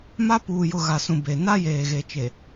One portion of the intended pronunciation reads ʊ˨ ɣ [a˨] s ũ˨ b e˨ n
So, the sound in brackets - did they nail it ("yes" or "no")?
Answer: yes